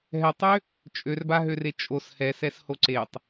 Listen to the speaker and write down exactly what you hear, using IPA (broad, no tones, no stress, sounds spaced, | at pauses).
ɦ ɛ tˤ ø | t͡ʃʼ ø r b a ɦ ø r e t͡ʃʼ o s h ɛ s ɛ s h o ǀ e tˤ